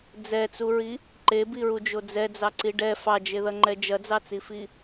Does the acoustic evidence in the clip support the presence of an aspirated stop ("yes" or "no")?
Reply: no